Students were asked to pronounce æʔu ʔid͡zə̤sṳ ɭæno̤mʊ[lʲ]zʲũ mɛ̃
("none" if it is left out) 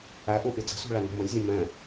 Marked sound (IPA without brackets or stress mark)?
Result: lʲ